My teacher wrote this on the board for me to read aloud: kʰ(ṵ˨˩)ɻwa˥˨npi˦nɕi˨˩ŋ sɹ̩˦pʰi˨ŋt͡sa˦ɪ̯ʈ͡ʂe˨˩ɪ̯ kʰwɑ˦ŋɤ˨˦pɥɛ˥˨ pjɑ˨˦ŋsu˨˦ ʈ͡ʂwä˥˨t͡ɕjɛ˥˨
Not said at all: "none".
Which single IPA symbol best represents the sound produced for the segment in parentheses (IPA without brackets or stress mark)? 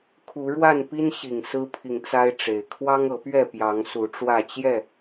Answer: u˨˦